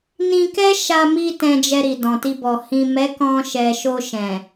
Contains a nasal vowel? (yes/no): yes